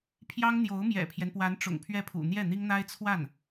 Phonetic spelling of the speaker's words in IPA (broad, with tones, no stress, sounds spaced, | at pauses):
pʰ j ɑ˥ ŋ n̪ j o˧˥ ʊ̯ m j ɛ̰˨˩ pʰ j ɛ˦ n p w a˧˥ n ʈ͡ʂ ʊ̰˨˩ ŋ pʰ ɥ ɛ˥˩ pʰ ṵ˨˩ n̪ j ɛ˥˩ n̪ i˥ ŋ n̪ a˥ ɪ̯ t͡sʰ w a˥˩ n